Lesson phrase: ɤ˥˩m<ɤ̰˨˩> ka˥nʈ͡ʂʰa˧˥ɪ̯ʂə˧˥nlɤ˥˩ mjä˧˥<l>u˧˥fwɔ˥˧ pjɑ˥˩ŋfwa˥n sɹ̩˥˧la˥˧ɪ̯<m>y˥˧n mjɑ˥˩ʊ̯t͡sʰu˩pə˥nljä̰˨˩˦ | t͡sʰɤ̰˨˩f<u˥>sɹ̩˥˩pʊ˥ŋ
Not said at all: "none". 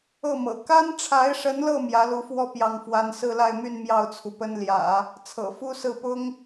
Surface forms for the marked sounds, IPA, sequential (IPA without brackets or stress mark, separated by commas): ɤ̰˨˩, l, m, u˥